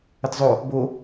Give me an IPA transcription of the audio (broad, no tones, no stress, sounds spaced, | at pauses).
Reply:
ə t zˤ o | b o